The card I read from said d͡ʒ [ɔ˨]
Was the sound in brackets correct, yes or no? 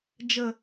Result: no